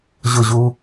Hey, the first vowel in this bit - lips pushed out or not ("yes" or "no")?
yes